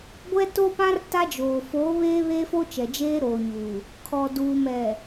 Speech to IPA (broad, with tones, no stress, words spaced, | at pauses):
ɡʷɛ˦to˦pã˦r ta˦d͡ʒoː˨ foː˨˦ βeː˦βeː˦fo˦ t͡ʃɛ˨d͡ʒeː˦ɾoː˨ɲuː˨ | kʰɔ˨duː˨mɛ˨